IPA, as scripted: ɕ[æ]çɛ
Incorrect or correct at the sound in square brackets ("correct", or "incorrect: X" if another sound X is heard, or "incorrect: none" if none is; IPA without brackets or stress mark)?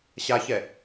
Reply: incorrect: a